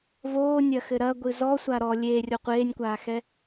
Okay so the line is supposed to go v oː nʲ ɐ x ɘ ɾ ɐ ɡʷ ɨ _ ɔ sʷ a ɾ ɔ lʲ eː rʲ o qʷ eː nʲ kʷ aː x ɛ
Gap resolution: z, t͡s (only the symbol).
z